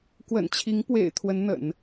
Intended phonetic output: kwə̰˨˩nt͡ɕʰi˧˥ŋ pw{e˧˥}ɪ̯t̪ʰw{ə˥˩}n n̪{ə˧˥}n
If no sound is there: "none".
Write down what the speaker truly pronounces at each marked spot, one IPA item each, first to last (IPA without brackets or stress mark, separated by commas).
ḛ˨˩, ə˧˥, ə̰˨˩˦